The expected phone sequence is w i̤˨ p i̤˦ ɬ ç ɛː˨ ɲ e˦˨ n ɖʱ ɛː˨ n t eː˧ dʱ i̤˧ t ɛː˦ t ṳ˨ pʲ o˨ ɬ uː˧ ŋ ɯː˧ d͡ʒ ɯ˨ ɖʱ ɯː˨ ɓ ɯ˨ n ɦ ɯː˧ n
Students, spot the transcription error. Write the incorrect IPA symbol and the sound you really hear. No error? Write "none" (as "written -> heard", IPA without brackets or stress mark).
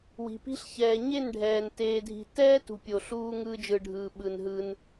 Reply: none